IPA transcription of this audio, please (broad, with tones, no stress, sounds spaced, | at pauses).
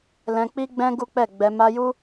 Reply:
l ɛ̃˧ k͡p i˦ ɡ͡b ɛ̃˦ ɡ u˦ k͡p ɛ˦˨ ɡ͡b ɛ˧ m a˧ j u˦